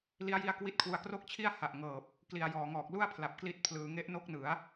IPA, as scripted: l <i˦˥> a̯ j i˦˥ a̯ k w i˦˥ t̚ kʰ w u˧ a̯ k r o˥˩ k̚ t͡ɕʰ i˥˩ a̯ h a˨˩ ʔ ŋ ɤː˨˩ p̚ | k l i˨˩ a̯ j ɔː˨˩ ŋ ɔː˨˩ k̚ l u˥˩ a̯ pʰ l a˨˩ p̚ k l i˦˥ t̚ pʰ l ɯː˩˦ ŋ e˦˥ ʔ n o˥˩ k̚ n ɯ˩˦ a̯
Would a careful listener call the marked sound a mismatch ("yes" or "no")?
no